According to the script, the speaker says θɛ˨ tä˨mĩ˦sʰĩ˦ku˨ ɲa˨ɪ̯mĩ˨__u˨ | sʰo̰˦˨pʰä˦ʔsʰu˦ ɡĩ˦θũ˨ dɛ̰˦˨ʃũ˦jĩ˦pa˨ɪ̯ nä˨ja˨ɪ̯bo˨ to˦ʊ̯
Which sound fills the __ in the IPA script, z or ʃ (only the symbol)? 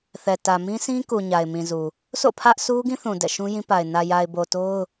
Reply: z